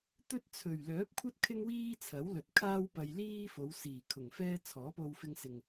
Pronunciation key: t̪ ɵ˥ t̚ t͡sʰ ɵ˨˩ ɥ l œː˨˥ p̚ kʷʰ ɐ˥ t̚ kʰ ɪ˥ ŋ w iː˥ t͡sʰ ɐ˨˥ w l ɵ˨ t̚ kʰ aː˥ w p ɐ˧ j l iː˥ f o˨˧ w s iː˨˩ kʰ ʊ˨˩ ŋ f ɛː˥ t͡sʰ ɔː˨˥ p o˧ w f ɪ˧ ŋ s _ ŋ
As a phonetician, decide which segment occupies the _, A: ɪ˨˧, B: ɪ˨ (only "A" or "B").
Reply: B